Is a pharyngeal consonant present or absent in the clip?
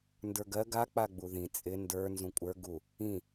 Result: absent